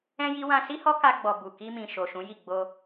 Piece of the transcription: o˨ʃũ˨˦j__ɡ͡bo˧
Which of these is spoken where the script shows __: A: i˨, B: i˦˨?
B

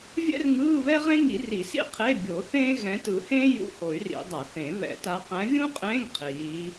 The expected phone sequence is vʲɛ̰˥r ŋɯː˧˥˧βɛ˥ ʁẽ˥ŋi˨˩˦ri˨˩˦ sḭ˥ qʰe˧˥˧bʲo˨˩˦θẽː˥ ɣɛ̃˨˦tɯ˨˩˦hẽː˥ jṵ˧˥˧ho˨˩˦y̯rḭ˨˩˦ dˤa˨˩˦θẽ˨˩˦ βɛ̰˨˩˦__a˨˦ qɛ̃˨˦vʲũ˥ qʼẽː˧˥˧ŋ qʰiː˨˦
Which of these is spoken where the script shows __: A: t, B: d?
A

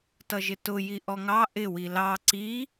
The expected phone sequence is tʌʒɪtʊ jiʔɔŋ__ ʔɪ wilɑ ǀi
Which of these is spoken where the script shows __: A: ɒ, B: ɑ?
B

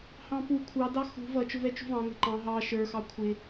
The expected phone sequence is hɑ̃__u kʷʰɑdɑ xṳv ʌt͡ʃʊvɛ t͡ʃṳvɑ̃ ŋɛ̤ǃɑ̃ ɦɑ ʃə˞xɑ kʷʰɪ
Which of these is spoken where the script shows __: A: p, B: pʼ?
A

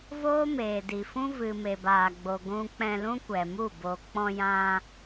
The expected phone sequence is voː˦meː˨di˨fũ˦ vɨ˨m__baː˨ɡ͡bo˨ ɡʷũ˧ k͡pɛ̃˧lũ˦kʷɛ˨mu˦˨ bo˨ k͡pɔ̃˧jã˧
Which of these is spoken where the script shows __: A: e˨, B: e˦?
A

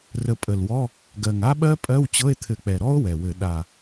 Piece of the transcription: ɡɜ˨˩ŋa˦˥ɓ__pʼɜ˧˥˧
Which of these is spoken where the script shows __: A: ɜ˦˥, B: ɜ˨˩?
A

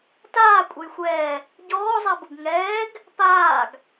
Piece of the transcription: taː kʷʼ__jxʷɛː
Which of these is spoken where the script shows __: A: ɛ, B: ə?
A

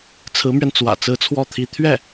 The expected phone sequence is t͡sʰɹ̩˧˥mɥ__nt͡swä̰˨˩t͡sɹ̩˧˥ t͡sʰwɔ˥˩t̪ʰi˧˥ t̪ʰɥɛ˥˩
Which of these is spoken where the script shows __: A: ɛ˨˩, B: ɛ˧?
B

